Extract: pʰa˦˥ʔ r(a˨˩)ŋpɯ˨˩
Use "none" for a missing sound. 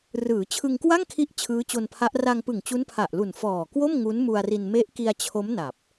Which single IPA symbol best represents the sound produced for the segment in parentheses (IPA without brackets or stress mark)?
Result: a˧